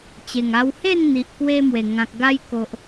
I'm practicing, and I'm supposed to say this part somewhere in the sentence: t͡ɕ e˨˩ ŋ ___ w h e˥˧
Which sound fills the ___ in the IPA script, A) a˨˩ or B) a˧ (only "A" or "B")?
B